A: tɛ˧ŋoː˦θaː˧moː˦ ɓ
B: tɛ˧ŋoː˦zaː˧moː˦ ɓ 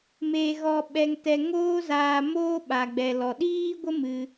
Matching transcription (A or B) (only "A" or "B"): B